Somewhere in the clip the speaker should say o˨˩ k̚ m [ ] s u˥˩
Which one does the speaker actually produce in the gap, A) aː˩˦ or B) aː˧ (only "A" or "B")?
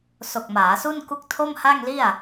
A